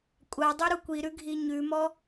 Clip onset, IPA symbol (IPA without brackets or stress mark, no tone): kʷʼ